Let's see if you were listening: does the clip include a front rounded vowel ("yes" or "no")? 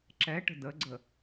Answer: no